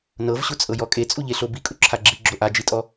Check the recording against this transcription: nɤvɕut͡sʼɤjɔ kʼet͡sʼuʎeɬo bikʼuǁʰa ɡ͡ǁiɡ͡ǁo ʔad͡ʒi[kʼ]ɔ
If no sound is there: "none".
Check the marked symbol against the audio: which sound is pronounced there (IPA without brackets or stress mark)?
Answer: tʼ